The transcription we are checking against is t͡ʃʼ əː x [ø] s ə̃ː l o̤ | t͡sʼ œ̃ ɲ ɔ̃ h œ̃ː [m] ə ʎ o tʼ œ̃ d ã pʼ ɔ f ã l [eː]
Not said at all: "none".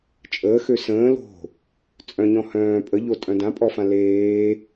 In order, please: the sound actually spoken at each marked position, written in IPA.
ø, pʼ, eː

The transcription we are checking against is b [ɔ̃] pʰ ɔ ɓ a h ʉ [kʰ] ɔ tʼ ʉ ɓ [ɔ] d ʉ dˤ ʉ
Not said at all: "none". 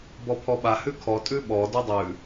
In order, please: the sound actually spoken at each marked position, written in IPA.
ɔ, kʰ, ɔ

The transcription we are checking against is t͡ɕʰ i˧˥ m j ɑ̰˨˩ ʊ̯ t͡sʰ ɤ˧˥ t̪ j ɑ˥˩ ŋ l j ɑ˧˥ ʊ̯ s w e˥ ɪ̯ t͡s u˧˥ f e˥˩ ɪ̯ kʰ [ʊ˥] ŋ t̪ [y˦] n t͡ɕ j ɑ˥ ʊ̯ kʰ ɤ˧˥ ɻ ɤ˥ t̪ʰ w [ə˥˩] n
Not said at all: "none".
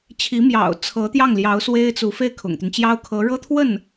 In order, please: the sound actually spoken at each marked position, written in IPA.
ʊ̰˨˩, y˦, ə˥˩

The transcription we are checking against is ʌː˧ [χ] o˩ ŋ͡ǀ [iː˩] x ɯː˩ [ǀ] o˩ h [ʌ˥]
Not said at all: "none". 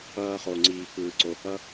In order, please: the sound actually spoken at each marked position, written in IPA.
χ, iː˩, ǀ, ʌ˥

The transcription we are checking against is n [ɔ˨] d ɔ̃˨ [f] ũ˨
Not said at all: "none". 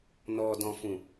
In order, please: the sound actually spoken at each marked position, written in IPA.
ɔ˨, f

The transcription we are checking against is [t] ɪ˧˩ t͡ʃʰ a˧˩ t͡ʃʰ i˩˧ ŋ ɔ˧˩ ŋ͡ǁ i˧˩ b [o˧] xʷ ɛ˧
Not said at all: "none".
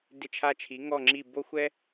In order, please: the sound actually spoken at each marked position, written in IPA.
d, o˧

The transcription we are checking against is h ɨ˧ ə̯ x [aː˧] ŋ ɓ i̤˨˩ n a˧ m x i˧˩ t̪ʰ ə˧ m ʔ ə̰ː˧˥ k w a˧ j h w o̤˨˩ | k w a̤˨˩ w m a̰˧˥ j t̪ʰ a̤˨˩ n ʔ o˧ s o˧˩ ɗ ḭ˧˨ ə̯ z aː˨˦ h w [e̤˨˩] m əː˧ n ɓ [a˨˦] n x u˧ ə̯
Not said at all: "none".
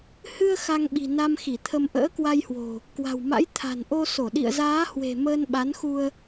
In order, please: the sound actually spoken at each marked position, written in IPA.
a˧, e̤˨˩, a˨˦

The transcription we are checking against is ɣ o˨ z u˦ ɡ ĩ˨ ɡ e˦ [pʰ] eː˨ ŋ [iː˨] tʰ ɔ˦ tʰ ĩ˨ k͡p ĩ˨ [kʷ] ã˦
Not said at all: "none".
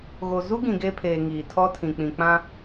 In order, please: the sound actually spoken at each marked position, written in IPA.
pʰ, iː˨, k͡p

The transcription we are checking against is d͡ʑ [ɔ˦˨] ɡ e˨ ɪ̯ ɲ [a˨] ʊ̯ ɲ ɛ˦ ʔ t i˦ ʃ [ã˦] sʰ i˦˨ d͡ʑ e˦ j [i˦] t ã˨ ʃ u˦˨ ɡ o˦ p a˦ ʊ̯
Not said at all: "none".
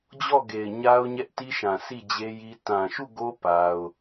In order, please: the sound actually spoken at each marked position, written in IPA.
ɔ˦˨, a˦, ã˨, i˦

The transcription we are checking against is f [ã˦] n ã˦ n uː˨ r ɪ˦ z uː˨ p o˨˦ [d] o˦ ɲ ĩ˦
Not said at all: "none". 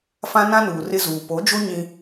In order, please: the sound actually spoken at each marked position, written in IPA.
ã˦, d͡ʒ

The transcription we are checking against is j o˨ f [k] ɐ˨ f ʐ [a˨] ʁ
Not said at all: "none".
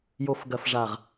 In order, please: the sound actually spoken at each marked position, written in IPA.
ɡ, a˨

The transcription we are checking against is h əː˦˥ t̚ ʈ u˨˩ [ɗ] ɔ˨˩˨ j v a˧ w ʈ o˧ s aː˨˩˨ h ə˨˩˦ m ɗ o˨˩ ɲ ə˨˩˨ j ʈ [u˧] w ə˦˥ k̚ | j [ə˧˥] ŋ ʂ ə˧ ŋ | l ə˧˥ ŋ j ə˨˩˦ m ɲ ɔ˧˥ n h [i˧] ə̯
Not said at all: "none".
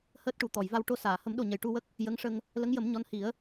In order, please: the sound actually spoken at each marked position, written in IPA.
t̪, u˧, ə˧˥, i˨˩˦

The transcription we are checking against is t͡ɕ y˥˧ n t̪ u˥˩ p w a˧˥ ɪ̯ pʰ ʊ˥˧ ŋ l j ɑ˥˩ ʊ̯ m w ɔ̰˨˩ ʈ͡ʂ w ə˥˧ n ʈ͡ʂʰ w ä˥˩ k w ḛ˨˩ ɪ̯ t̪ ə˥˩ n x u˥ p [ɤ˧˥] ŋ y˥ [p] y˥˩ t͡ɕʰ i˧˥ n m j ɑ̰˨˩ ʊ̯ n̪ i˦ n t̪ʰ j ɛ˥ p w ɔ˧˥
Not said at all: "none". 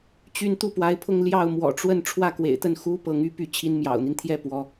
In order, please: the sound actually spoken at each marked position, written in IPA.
ɤ˧˥, p

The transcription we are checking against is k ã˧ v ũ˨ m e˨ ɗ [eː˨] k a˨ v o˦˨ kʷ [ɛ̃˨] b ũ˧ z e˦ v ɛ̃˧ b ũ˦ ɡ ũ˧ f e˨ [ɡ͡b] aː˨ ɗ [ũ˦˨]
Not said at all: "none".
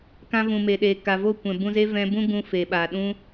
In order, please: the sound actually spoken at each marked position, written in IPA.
eː˨, ɛ̃˨, ɓ, ũ˦

